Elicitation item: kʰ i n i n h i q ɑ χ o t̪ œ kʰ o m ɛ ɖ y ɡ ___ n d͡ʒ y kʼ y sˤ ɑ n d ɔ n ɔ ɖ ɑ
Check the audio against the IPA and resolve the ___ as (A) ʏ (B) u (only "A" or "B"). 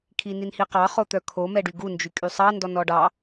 B